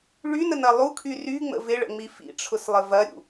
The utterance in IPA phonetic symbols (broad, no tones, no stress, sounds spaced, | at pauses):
ɭ y n ə n ɐ lˠ u kʰ y r y ŋ͡m ə̰ v ɪ ɭ ə̰ ŋ͡m i f ḭ ʈ͡ʂʰ ʊ s lˠ ə v ɐ ɾʲ ṵ